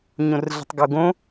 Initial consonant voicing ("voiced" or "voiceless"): voiced